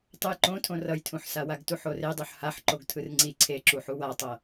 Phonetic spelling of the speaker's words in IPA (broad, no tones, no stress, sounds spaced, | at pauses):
tˤ ɯ j ǃ õ tʰ õ r ʌ j tʰ ũ ħ s a w a ɡ t u ħ o r e dˤ u ħ h a ħ ǃ o ɡ tʰ ɯ r ŋ͡ǀ i ǀʰ e ǁ u ħ u w a tˤ ʌ